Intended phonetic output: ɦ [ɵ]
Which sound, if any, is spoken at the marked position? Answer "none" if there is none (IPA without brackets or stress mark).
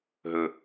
ɵ